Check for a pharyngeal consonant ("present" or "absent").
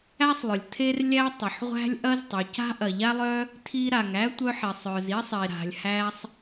present